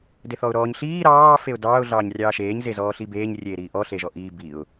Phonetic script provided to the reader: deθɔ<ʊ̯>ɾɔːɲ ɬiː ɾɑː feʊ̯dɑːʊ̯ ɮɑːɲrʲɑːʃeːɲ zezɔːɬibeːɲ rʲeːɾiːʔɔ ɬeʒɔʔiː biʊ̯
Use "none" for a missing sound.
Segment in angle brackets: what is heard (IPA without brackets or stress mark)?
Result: ʊ̯